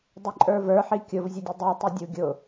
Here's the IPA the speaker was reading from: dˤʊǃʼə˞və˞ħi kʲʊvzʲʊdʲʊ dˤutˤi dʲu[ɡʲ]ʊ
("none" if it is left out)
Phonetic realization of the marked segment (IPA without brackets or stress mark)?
ɡʲ